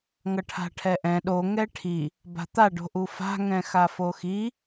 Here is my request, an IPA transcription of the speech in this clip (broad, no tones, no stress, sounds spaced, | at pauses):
ŋ ʌ ʈʰ a̤ ʈʰ ɛ ʔ ɛ̃ ɗ o ŋ ɛ ʈʰ i | b a̤ t̪ a ɖ o̤ ʔ u f a̤ ŋ ɛ̃ x a f o x i